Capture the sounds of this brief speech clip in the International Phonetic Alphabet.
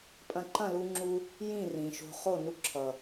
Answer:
pʼɐ̃˧ ǃɐ̃˦˨ lu˦ŋ͡ǁu˦ | jĩ˦˨rĩ˨ʃo̤˧ χo˦˨ nu˧ǁʰʌ˨

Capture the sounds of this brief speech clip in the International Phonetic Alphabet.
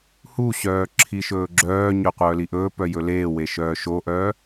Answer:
huɕœː ǁʰiʃɵːɡ͡ǁœːɲœ qʷœːliʔɵːpœ jɵleːwe ʃœːʃoʔœː

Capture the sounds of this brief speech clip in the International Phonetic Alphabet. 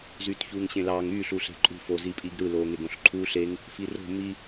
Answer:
zyːtçuːŋɕẽlɑːŋ yː ɬuɬe̤ǃʼṳf ozipʼiɡɾɯ loːŋeɡõɬǃʰuːɬ eŋ | firo̤ mi

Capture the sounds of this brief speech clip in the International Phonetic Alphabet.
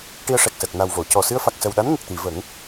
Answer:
ʈi˧ə̯ʂɛ˨˩k̚səː˨˩k̚ na˨˩wvo˨˩˨cɔ˨˩ sɨ˧ə̯fa˨˩k̚sə˨˩wɗa˧˥n ŋə˨˩k̚t̪i˨˩˨ və˨˩˦ŋ

